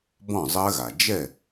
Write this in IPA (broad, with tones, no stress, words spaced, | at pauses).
bɔ̃˥˩zˤɜ˦˥ɣa˩ d͡ʒɛ˥˩